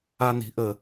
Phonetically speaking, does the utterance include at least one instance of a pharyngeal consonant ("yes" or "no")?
no